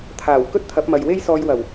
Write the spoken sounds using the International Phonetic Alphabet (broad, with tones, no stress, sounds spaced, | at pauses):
t̪ʰ aː˨˩ w k ɵ˥ t̚ t̪ʰ ɐ˨˥ p̚ m ɐ˨ j w e˥ j s ɔː˧ j w ɐ˨˩ w